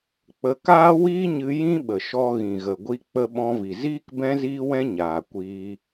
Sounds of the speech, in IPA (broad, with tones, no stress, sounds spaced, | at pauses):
k͡p ə˧ k aː˦ w iː˦ ɲ ɨ˧ j ĩ˦ ɓ ə˨ ʃ ɔ˧ ɣ ĩ˨ ɣ ə˨ ɡʷ i˧ k͡p ə˦ ɓ ɔ̃˦ v i˨ z iː˦ k b ɛ̃˦ z iː˦ w ɛ̃˦ ɲ aː˨ kʷ iː˧